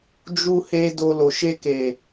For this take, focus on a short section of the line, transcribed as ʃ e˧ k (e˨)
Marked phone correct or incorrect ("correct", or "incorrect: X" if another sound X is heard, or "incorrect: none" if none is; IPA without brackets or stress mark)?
correct